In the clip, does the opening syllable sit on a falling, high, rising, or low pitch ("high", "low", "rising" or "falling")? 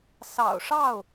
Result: low